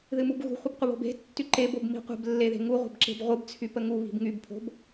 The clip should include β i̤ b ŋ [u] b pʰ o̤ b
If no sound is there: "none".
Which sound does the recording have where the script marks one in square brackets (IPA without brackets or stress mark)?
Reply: y